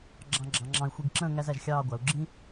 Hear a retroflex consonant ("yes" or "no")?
no